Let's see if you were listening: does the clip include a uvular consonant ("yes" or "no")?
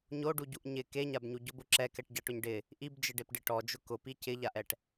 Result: no